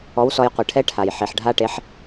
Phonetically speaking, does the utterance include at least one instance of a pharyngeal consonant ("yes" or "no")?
yes